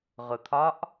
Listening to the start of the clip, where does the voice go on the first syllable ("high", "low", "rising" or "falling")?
low